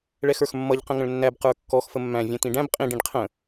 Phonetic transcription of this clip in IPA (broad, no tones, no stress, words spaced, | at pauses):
ɭɛxə˞xmːʌʎ qə̃ŋə̃ɭnːæb qə˞kːɔx fəmːæ̃ vʲɛ̃t̪ĩɖæ̃b qʼĩ ɖĩɖqʰə̃